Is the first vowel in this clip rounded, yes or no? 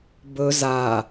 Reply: yes